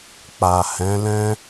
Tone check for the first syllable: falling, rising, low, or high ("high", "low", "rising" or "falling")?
low